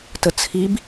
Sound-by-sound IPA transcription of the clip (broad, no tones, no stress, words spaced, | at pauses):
tət͡sʰib